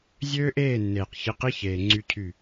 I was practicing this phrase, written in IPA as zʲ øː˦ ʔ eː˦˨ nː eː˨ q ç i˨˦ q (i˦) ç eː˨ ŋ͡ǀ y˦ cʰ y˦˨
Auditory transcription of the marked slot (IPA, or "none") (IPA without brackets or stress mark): i˦